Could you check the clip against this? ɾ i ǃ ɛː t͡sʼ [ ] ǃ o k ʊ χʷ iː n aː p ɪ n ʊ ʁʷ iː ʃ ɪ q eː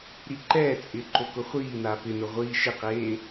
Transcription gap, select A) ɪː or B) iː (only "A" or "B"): A